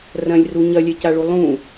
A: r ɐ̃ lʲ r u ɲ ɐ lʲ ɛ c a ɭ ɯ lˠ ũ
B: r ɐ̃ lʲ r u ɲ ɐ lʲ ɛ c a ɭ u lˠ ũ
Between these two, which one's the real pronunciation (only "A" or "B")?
B